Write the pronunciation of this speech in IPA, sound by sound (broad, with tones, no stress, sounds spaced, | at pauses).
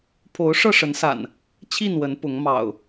pʰ o˨˦ ʊ̯ ʂ ɤ˥˨ ʂ ə˨˦ n s a̰˨˩ n | t͡ɕʰ i˥˨ n w ə˨˦ n p ʊ˨˦ ŋ m ɑ̰˨˩ ʊ̯